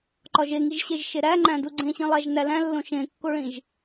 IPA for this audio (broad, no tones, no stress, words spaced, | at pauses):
ǃɒʒeŋiʒɕeʒ ʃeɾæŋ͡ǃæ̃ duɡ͡ǀẽɕĩlˠæʒ nælæ̃lːõ ʃẽkːoɭĩʒ